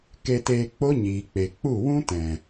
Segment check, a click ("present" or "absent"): absent